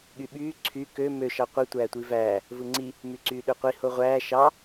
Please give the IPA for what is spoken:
ɠ y ɓ yː ǀʰ y k ø m ø ʃ ɑ qʷ ɯ tʷ æː tʷ i v æː | v ɯ ŋ͡ǀ i | m y ǀ yː ɗ ø qʷ i h o ʁʷ æː ʃ ɑ

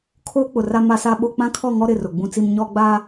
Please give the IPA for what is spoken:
kʰ oː˦ k͡p ʊ˨ r a˦ m a˦ s a˦ ɓ o˦ k͡p ã˦ kʰ ɔ˦˨ ŋ ɔ˦ ɾ ɪ˦˨ r ʊ˨ ɡ͡b ũ˦ t͡s i˦ m ɲ ɔ˦ ɡ͡b a˦

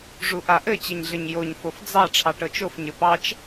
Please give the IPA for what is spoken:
ʐ u ʔ a ʔ ɘ t͡ɕ ɘ ɲ ɮ ɘ ɲ j o ɲ f o f d͡z ɑ ʈ͡ʂʰ ɑ ʈ ɤ t͡ʃ o f ɲ ɘ p ɑ t͡ʃ

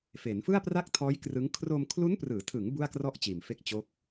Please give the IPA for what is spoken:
f e˩˦ n f ɯ˥˩ a̯ p r a˥˩ k̚ tʰ ɔː˦˥ j k r ɯ˦˥ ŋ kʰ r o˧ m kʰ l u˦˥ n p r ɯː˩˦ tʰ ɯ˩˦ ŋ b u˥˩ a̯ k r ɔ˥˩ ʔ t͡ɕ iː˨˩ m f e˥˩ k̚ t͡ɕ o˦˥ k̚

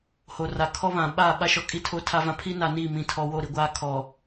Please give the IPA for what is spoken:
h o˨ r a˨ kʰ ɔ˦ β ã˨ ɓ aː˦˨ ɓ a˦ ʃ ɔ˨ kʼ i˦˨ tʰ o˦ tʰ a˦ v ã˦ pʰ i˦ n a˨ n iː˦˨ m ĩ˨ tʰ ɔ˨ w o˦˨ ɾ i˨ ɡʷ aː˦ kʰ ɔ˨

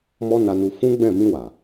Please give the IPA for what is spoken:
m ɔ˦ n a˧ n u˧ f ũ˦ ɡ͡b ɛ̃˦˨ m ĩ˧ w a˨

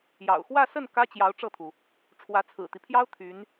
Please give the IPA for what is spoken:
j ɑ̰˨˩ ʊ̯ x w ä˥˧ s ə˥˩ n k ä˥ t͡ɕ j ɑ˧˥ ʊ̯ ʈ͡ʂ ɤ˥˩ t̪ʰ u˩ | ʈ͡ʂʰ w ä˧˥ t͡sʰ ɹ̩˨˩ t̪ i˦ pʰ j ɑ˥ ʊ̯ t̪ʰ y˧˥ n

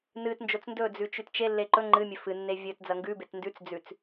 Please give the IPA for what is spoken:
n ɨ t n d͡ʒ o t͡s n d ɵ d͡z ʉ t͡ʃ ʉ t t͡ʃ e lː e ǃ ɵ ŋ͡ǃ ɨ mʲ ɵ f ɨ nː e vʲ ɵ t d͡z ɐ ŋ ɡ ʉ b e t n d ʉ t͡s d͡z ʉ t͡s

